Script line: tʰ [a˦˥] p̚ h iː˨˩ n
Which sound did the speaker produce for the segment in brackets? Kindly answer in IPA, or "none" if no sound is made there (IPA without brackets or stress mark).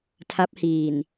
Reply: a˦˥